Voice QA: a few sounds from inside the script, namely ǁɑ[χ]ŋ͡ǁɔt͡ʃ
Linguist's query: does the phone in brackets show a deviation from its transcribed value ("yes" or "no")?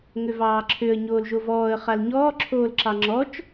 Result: yes